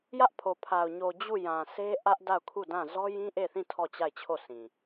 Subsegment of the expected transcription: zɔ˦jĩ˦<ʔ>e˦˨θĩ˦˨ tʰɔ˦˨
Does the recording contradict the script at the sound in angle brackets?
no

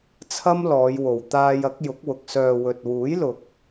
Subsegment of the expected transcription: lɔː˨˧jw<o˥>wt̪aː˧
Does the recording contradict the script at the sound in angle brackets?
yes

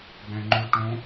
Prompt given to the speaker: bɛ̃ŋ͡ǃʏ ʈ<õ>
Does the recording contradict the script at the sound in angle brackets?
no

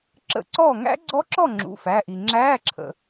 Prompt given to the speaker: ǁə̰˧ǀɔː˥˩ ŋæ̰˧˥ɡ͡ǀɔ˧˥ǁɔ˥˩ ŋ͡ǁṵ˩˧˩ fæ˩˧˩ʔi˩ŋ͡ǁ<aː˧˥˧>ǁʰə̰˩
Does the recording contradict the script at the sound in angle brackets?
yes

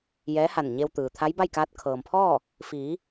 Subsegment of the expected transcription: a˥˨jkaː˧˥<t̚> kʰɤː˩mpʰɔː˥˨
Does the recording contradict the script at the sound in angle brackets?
no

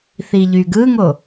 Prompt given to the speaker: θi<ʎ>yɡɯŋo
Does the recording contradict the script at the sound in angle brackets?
no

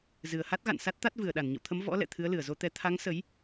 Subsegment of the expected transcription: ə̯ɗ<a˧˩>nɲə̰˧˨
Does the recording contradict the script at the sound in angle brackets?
no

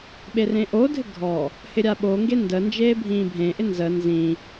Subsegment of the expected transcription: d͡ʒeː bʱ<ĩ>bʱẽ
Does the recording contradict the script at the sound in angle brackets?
yes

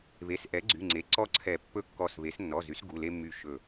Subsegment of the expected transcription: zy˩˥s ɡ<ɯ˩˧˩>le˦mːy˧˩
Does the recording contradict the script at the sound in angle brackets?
yes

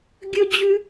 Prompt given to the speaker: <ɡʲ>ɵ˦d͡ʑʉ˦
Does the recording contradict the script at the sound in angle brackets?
no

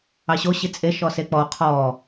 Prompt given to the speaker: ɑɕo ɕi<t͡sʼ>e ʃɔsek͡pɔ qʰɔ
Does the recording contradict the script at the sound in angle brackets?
no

